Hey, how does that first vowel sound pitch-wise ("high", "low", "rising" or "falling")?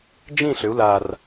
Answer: falling